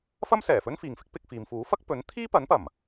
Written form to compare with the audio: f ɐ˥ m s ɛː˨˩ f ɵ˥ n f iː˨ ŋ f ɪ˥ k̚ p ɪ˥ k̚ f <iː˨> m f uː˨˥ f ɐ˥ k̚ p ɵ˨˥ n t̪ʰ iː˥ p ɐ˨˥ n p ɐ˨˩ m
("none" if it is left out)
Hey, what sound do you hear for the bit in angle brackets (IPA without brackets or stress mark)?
iː˨˧